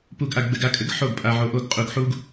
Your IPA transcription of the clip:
p u˧ ɡ ʔ a˧ ɡ ɡ͡b ɘ˧ ɡ a˧ kʼ ɘ˩˥ ɡ ħ o˥˩ ɡ pʼ a˧ ʕ o˧ ʔ o˥˩ ɡ qʼ u˧ ɡ ħ u˥ ɡ

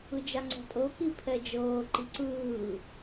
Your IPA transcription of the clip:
ɯ d͡ʒ a ŋ͡ǀ ɔ̤ tʼ ɤ k i pʰ ɛ d͡ʒ ɤː ǃ i ǀ ɯː

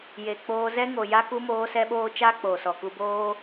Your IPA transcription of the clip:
j e˨ k͡p oː˧ z ɛ˦ ŋ o˨ j a˧ k u˦ m oː˦ s ɛ˦ ɓ oː˦ t͡ʃ aː˦ k͡p oː˨ s ɔ˨ k u˧ b oː˦

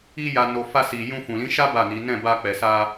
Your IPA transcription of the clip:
i˧ j a˨ n o˨ f a˧ s i˨ j ũ˧ f ũ˨ l ĩ˨˦ ʃ a˦ b a˦˨ n i˨˦ n ɛ̃˦˨ b a˧ k͡p ɛ˨ s a˧

